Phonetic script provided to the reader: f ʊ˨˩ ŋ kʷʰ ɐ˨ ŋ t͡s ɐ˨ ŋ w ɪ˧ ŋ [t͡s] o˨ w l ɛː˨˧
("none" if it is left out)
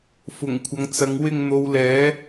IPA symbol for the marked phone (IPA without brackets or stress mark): n̪